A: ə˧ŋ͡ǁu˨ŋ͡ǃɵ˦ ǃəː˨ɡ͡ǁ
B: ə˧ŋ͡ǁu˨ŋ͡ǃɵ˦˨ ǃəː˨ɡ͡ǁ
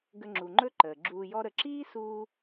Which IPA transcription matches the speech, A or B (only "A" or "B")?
A